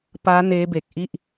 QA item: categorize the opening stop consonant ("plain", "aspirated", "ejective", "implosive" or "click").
plain